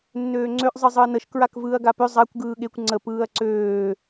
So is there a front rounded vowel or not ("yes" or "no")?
yes